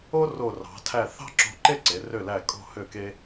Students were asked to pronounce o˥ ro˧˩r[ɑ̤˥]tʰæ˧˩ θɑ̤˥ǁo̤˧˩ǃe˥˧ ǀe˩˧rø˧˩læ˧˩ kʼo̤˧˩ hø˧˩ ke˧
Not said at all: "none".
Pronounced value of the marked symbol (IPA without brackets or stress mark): ɑ̤˩˧